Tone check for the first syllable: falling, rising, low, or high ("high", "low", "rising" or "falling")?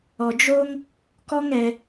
low